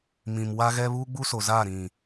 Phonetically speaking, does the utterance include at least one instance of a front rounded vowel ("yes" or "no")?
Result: no